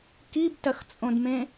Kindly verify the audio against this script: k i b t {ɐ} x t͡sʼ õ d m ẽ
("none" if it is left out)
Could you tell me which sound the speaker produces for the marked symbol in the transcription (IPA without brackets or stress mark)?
ɐ